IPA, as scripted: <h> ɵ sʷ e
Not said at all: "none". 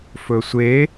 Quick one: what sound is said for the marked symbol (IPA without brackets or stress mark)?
f